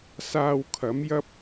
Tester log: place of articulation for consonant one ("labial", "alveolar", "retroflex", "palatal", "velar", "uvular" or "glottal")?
alveolar